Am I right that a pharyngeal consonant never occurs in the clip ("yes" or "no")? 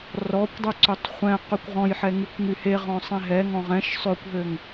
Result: no